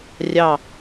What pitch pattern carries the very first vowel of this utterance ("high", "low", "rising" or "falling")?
falling